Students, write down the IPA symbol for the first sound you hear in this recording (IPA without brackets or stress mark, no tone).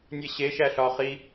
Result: nʲ